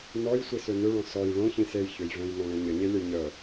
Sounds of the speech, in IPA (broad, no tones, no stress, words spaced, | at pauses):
nɔj sʷisønøɭɔ̃ sɔj ɭõ çĩsej çøjvœ̃j nɔ̃ɭẽɲəɲe lʲəjɲœ